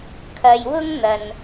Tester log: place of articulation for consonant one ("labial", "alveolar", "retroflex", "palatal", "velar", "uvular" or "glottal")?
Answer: velar